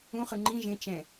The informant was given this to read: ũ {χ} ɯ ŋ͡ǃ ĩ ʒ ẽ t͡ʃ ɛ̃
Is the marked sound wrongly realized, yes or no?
no